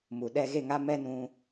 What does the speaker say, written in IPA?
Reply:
m u˨ ɗ ɛ˧ ɣ e˦˨ ŋ a˦ m ɛ˦ n ũ˧

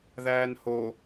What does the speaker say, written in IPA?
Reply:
ð æː n h o

